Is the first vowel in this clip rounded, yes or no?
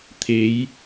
no